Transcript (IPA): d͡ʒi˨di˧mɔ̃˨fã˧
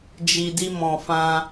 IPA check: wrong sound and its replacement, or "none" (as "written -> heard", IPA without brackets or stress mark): none